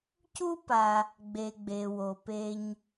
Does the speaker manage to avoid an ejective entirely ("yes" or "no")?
yes